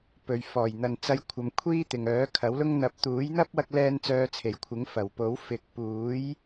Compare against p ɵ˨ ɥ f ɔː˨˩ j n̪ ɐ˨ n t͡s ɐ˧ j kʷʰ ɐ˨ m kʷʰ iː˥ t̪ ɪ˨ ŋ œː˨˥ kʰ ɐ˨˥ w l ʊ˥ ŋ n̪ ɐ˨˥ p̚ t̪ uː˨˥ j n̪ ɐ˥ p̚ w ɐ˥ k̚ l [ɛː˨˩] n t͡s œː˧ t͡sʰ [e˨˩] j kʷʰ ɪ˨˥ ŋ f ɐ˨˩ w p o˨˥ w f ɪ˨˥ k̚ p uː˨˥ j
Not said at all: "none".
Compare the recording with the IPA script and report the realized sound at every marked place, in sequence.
ɛː˥, e˨˩

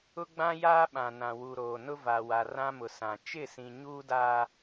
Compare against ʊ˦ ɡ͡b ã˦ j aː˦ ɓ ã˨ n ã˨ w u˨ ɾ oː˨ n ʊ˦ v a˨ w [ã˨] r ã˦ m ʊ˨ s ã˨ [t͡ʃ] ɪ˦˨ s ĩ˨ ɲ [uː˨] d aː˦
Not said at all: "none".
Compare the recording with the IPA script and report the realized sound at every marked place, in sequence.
a˨, t͡ʃ, uː˦

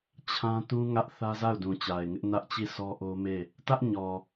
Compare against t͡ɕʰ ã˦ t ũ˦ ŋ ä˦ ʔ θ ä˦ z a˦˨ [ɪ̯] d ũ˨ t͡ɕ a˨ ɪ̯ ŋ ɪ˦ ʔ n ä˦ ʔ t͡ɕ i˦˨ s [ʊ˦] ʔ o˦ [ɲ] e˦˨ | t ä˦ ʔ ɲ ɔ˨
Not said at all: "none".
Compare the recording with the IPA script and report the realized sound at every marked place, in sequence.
ʊ̯, ɔ˦, m

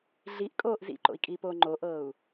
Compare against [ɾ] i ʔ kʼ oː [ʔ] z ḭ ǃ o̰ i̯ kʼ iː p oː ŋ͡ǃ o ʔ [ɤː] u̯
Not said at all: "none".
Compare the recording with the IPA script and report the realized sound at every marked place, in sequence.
ɮ, ʔ, ɤː

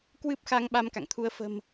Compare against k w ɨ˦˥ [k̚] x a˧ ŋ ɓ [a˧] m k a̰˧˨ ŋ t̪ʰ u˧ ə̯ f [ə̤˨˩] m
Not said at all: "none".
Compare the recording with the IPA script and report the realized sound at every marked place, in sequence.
p̚, a˧, ə̤˨˩

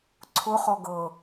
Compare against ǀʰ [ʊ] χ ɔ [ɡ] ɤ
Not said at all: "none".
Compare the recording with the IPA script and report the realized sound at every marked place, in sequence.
ʊ, ɡ

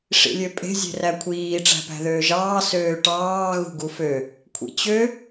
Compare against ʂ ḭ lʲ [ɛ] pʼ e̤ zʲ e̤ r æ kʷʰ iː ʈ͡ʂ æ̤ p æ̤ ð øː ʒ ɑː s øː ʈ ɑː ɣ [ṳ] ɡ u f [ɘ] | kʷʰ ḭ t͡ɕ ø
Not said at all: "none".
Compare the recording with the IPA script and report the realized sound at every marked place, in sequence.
ø, ṳ, ø

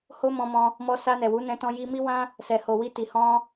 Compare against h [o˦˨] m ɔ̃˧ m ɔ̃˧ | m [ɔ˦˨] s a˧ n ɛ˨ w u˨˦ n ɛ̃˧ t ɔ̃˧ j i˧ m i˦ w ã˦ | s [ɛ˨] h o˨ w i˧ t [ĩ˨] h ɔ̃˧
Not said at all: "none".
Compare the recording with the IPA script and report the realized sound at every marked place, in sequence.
o˦, ɔ˧, ɛ˨, i˨

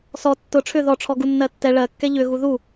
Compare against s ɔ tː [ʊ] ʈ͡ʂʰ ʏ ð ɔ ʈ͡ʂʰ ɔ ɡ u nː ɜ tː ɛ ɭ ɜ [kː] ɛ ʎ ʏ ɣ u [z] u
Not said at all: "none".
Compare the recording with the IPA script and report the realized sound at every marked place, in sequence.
ʊ, kː, ð

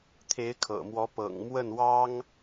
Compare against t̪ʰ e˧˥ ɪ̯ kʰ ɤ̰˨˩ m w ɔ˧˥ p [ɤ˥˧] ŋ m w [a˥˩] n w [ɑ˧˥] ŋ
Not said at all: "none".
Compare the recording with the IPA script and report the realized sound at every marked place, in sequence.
ɤ̰˨˩, ə˥˩, ɑ˥

